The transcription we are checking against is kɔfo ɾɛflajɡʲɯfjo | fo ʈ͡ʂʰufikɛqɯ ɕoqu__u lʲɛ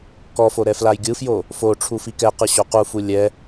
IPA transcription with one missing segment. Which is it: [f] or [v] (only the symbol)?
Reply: f